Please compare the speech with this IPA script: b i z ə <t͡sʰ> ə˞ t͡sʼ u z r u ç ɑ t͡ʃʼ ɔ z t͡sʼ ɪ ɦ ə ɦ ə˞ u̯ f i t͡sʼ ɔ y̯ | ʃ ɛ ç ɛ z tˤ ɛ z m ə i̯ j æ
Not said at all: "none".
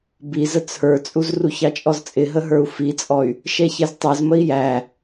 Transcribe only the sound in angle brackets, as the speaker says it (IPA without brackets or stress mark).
t͡sʰ